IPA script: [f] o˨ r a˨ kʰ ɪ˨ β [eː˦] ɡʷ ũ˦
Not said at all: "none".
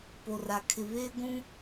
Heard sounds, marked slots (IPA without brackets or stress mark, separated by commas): p, eː˦